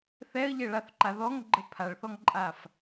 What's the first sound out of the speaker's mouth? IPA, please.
θ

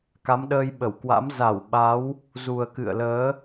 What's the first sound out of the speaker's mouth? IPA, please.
k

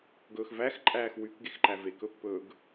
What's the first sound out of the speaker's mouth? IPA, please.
ɡ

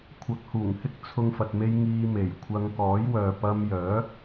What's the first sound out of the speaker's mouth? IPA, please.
kʷʰ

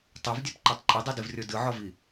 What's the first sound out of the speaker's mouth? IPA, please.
tˤ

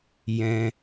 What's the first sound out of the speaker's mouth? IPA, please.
j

